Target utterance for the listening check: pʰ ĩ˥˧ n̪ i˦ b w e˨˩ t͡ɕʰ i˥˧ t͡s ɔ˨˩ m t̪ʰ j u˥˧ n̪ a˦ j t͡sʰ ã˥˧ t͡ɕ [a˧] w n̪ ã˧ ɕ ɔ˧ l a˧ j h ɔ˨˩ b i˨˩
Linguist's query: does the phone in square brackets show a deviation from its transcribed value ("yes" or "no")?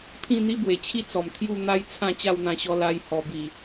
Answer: yes